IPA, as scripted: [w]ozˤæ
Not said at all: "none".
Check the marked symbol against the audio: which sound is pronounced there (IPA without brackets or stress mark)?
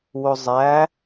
w